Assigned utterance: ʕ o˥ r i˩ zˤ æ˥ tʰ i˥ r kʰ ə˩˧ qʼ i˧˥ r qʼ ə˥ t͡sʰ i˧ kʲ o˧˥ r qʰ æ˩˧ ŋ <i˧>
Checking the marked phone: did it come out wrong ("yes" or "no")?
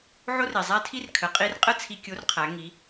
yes